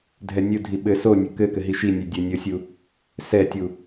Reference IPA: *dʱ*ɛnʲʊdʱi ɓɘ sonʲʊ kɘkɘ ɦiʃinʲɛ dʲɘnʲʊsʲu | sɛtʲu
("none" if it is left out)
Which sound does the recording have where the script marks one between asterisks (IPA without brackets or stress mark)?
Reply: dʱ